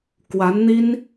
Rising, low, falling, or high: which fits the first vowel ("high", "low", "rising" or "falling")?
rising